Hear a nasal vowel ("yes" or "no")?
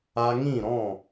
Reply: yes